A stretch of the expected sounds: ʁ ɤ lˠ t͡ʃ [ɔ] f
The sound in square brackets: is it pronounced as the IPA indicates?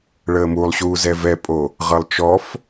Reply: yes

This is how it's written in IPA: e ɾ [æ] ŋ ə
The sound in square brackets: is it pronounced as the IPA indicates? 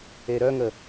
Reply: no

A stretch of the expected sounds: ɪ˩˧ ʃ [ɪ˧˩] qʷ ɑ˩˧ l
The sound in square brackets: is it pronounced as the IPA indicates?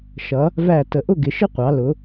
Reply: no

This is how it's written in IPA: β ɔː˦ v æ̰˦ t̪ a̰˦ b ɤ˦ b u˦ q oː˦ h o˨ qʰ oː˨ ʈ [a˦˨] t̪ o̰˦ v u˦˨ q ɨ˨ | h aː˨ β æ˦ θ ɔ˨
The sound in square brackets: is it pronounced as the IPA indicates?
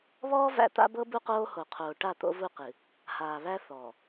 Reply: yes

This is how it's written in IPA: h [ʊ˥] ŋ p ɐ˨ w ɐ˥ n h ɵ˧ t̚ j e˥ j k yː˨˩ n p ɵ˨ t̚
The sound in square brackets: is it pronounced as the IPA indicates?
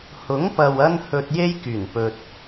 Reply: no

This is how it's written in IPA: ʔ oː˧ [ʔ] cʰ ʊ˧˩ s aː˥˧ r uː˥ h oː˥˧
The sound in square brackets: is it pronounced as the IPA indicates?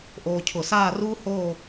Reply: no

